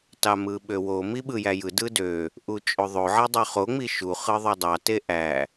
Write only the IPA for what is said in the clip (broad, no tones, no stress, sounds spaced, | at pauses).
t ɑ m ɯ ɓ ø w o m i ɓ ɯ j æ j ɯ d ɯ d ø | ʔ u t͡ʃʼ o ðˤ o ʕ e dˤ ø χ o ŋ͡m i ʃ u χ ɯ ðˤ o dˤ ɑ t e ʔ æ